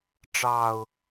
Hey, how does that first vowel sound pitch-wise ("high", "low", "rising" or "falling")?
low